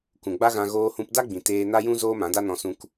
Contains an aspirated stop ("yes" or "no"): no